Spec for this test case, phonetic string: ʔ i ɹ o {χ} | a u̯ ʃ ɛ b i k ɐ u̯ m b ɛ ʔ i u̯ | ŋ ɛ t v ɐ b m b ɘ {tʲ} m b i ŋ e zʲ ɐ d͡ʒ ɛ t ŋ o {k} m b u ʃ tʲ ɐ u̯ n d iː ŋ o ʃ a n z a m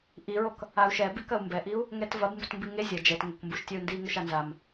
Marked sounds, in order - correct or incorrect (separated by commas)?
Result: incorrect, incorrect, correct